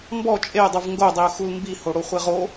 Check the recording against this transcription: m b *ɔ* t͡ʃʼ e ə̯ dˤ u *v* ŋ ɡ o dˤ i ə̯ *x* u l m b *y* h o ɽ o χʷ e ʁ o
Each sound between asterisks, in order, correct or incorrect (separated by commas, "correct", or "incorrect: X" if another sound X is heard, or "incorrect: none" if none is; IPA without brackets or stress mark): correct, correct, correct, incorrect: i